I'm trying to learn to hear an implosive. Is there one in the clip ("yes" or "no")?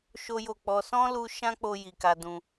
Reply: no